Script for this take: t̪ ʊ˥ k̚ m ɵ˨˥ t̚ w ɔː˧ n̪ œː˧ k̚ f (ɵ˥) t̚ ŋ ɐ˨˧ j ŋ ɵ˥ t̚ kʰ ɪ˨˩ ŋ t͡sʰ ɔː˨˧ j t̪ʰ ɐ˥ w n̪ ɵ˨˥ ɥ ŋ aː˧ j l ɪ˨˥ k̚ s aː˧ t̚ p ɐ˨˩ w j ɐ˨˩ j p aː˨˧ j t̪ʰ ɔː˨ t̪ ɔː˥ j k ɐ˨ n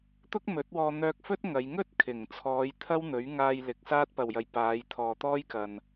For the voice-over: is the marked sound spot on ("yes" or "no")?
yes